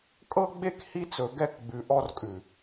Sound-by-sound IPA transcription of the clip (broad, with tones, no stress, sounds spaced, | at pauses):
kʼ ɤ˦ ɡ͡b e˦ k h i˦ t͡s ɵ˨ ɡ ɛ˦˨ k ɡ͡b ʉ˨ ʔ ɔ˦ r kʼ ʉ˨